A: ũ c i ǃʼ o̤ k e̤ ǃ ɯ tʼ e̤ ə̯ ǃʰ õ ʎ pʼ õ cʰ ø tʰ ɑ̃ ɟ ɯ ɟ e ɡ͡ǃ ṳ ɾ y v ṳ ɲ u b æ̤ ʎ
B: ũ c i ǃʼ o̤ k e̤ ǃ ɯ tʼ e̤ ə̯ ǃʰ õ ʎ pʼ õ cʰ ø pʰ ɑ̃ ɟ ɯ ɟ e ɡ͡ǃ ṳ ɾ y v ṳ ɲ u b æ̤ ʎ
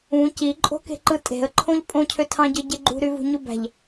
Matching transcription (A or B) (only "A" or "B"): A